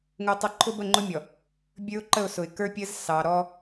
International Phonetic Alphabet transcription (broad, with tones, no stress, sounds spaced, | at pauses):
ŋ ʊ˦ tˤ ʌ˦ ǃʰ ʊ˦ b ə˦˨ ŋ͡ǃ ʊ˦ mʲ ɔ˨ | bʲ ə˞˦ ʊ̯ ǃ ə˦˨ ʊ̯ s ʊ˨ ɪ̯ k ə˞˦ pʲ ə˦ z s ɑ˨ ɾ ɔ˦